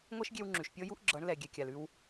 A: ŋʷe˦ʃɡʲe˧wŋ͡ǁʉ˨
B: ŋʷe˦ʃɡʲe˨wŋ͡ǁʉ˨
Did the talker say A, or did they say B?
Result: A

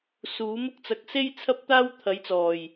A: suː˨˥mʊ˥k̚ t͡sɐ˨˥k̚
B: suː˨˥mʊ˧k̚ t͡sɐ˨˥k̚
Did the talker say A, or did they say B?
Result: A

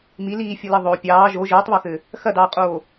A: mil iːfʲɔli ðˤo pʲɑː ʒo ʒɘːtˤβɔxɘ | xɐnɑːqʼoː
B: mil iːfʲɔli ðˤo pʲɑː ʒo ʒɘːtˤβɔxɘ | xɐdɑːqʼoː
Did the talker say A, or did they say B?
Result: B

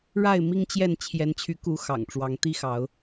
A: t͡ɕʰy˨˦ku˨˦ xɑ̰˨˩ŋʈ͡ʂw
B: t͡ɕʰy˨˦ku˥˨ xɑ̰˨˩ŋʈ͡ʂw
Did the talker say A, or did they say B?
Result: A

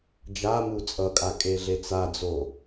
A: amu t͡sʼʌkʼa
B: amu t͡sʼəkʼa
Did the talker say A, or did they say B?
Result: A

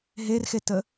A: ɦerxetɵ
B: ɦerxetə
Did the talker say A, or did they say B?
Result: B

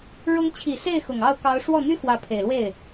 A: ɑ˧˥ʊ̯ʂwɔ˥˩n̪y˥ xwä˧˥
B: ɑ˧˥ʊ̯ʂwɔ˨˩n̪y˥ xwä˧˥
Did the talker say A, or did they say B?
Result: A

